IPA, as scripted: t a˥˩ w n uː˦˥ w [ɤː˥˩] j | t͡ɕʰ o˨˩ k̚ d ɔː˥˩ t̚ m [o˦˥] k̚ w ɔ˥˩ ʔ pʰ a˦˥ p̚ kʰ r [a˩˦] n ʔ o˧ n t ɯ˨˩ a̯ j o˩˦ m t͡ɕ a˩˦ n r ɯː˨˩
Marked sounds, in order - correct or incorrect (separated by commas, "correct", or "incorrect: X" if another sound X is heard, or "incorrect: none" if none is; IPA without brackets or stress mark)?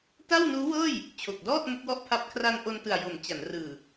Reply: correct, correct, incorrect: a˧